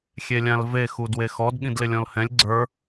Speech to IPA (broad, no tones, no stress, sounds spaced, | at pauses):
xʲ e lʲ ã l v e x u d w e x ɔ d ɠ ĩ d l ɪ lʲ ɔ̃ l h ɛ̃ lʲ ɡ͡ǀ ə˞